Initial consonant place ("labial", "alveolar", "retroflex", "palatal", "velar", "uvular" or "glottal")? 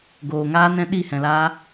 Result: velar